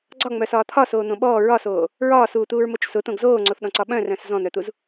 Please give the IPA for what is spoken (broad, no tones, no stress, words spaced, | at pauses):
ɡ͡ǀɒŋ͡mœsɒː t̪ʰɒsoːn̪õ ɓɔː ɹɒsoː | ɹɒːsuːt̪uːɹmot͡ʃ sʊt̪õɡ zoːŋ͡ǀoθɗɔ̃ǀɒ ɓœ̃rœ̃s zɔ̃n̪œt̪uz